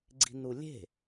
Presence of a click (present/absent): present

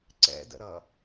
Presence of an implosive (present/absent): absent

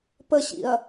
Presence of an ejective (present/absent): absent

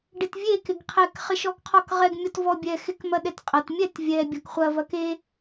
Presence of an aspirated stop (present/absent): present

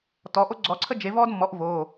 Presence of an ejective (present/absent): absent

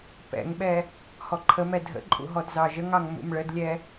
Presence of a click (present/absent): present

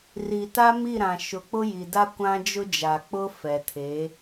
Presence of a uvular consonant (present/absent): absent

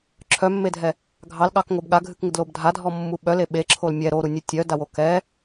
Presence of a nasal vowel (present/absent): absent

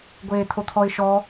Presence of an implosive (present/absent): absent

